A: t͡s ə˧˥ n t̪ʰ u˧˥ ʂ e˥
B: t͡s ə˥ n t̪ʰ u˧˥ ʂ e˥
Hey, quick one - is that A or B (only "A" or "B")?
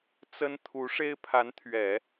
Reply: B